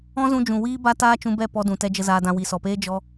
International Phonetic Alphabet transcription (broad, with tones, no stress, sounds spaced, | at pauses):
ɔ̃˦ z ũ˧ d͡ʒ ũ˨ w iː˦ b a˦ t aː˦ t͡ʃ ũ˧ b ɛ˦˨ p ɔ˧ d ũ˨ t ɛ˧ d͡ʒ ə˧ z aː˧ d ã˧ w i˨ s ɔ˨ p eː˦ d͡ʒ ɔ˦